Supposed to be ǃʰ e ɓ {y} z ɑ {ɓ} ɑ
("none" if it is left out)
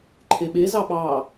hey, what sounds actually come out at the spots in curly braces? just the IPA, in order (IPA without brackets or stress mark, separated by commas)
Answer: e, ɓ